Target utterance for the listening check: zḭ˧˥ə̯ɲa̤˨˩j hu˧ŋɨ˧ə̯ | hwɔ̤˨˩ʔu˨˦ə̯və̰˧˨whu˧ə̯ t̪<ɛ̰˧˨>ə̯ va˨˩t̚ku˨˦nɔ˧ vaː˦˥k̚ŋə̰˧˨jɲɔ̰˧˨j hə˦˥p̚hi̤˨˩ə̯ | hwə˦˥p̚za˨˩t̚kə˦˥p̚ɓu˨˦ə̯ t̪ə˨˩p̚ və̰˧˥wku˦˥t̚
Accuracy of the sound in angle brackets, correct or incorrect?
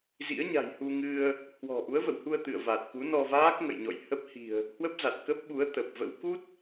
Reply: incorrect